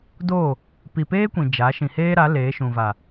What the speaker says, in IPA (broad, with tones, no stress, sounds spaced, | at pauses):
d oː˦˨ | p i˨ p eː˦ kʷ ĩ˨ d͡ʒ a˨˦ ʃ ĩ˨ h eː˦ ɾ a˨˦ l eː˨˦ ʃ ũ˨ v a˨